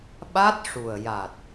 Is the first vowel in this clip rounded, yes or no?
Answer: no